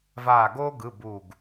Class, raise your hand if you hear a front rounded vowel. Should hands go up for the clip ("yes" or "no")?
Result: no